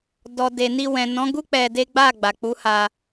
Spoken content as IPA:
d ɔ˨ d e˨ n i˧ w ɛ̃˨ n ɔ̃˨˦ ɡ u˦ k͡p ɛ˧ d e˦ ɡ͡b a˦˨ ɡ͡b a˨ k͡p u˨˦ h a˧

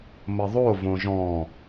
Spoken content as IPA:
m ə ðˤ o v õ ʒ ɔ̃

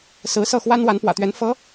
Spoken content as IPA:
s ɹ̩˧˥ s ɤ˥˩ x w a˥ n w a˧˥ n p w ä̰˨˩ t̪ ɥ ɛ˧˥ n f ɤ˧˥

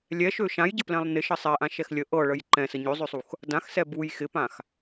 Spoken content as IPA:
lʲ ɛ ʃ ø ʃ ã j ɟ ə p l ɛ̃ lˠ n ɪ ʃ ə sˤ ɛ ʔ ã ʃ ɛ x lʲ ə ʔ ɤ ɭ ə j ǃ ɛ̃ s ə ɲ ø zˤ ø sˤ u x | d ã x s ɛ b u j x ɪ p ã x

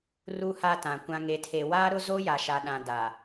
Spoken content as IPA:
r u˦ h a˦ t ã˨ kʷ ã˨ ŋ e˨ tʰ e˨ w aː˦ ɾ ʊ˦ z o˦ j a˨ ʃ a˨ ɗ ã˨ d a˨

